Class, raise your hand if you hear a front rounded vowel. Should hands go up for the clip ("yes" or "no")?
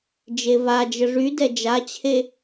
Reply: yes